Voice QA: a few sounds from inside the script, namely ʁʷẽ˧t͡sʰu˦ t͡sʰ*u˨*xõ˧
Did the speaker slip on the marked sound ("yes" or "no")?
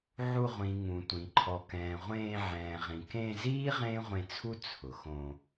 yes